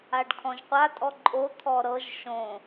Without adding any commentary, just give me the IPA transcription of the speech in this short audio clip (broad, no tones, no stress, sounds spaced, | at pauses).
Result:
a ɖ kʰ ɔ̃ ʒ qʷ a tʼ ɔ ǃʼ o t̪ʰ ɔ ɾ ɤ ʒ ʃ õ